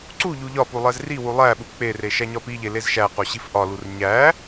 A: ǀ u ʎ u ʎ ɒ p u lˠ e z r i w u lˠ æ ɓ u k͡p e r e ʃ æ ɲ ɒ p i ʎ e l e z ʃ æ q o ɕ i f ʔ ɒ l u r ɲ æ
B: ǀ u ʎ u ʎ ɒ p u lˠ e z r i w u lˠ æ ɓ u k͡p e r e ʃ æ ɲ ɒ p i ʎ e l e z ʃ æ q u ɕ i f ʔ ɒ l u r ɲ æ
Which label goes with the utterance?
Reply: A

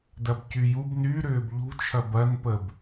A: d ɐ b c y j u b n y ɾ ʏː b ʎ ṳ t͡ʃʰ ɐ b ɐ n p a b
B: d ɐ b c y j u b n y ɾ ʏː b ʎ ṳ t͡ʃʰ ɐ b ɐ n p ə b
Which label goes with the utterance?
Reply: B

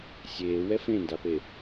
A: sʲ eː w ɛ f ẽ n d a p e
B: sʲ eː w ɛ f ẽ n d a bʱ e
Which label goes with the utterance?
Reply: A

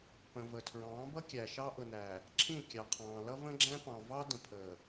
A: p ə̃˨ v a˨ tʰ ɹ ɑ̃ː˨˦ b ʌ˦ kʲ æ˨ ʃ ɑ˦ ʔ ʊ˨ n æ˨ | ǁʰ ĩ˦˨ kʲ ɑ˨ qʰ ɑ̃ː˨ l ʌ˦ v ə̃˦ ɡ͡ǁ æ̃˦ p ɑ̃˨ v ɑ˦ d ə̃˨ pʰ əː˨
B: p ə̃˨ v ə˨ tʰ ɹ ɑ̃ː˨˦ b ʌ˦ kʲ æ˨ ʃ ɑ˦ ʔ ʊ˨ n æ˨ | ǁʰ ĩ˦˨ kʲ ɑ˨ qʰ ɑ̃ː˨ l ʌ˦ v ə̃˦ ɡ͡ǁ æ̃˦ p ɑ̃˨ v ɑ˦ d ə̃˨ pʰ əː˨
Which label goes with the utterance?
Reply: B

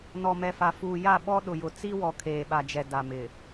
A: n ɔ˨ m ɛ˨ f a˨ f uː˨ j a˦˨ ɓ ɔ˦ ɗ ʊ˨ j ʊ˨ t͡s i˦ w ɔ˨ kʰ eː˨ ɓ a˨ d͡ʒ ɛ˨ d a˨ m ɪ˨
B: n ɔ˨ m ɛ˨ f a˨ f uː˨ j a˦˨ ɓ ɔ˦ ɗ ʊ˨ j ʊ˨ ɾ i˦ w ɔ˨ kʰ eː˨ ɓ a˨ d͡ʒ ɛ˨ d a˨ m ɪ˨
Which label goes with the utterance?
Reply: A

